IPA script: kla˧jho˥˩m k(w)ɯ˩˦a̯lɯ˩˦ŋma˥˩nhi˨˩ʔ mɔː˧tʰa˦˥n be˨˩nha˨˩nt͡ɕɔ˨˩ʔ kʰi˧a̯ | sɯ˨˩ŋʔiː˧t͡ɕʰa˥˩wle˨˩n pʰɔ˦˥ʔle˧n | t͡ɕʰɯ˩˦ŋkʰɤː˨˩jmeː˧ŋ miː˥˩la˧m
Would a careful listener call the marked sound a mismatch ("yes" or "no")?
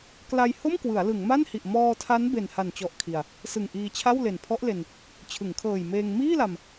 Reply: no